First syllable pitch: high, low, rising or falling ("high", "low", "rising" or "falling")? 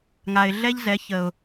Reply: low